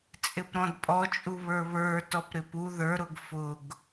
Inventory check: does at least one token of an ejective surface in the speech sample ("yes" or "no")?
yes